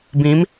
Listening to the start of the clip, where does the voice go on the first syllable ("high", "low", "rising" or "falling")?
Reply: rising